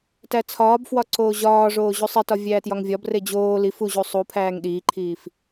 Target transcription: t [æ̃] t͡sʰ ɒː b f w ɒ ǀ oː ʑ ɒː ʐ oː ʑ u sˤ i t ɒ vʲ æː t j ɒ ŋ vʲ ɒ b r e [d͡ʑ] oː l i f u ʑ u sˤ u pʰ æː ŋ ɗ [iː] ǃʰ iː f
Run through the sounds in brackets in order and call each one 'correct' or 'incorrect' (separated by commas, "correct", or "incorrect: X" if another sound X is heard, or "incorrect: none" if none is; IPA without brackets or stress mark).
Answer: incorrect: æ, correct, correct